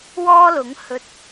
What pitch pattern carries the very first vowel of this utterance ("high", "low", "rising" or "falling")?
high